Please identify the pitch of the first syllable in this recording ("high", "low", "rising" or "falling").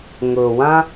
low